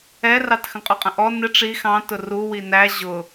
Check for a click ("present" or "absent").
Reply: absent